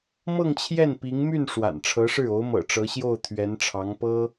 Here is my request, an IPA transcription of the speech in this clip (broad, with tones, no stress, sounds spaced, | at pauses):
m ɤ˥˧ ŋ t͡ɕʰ j ɛ˥˩ n p i˧˥ ŋ m y˥˩ n ʂ w a̰˨˩ n ʈ͡ʂʰ ɤ˧˥ ʂ ɻ̩˥˩ o˧˥ ʊ̯ m ɤ̰˨˩ ʈ͡ʂ ɤ˧˥ ɕ j o˥˩ ʊ̯ t̪ʰ ɥ ɛ˧˥ n ʈ͡ʂʰ ɑ˧˥ ŋ p ɤ˥